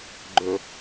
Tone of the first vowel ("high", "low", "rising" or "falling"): low